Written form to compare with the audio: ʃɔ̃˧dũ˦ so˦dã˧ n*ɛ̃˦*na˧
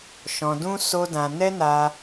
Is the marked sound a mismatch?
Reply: yes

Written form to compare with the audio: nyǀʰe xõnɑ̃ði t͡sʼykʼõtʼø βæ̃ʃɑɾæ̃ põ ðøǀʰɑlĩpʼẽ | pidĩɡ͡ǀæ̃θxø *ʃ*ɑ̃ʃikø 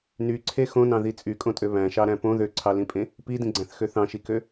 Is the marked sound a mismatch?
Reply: yes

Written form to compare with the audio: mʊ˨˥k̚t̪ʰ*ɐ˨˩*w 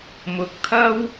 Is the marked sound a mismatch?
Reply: yes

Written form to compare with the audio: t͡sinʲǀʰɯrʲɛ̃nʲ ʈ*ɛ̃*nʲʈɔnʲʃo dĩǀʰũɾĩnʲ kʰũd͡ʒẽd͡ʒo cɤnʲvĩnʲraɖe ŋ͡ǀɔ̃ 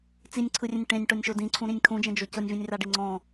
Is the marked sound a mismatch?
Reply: yes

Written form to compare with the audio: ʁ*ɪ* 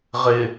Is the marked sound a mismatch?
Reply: no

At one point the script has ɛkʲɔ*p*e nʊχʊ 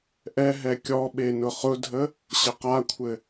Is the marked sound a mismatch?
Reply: yes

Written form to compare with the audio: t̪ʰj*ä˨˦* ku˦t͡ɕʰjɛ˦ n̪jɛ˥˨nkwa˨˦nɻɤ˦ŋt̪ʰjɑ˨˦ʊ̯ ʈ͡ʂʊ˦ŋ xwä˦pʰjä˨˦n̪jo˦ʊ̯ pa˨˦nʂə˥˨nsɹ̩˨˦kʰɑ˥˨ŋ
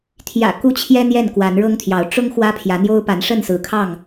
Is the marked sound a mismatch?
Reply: yes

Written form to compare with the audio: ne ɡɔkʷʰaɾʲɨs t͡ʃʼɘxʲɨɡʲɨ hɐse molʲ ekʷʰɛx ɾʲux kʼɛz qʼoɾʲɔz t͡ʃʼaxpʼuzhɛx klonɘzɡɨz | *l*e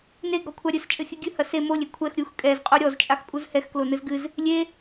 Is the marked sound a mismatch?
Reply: yes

